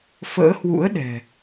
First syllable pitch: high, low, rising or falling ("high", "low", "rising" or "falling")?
rising